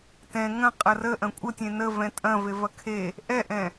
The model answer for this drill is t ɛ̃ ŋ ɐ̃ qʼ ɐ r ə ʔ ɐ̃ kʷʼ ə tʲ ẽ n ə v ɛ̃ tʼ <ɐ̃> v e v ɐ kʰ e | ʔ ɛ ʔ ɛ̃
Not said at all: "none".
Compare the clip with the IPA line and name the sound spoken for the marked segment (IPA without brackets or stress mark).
ɐ̃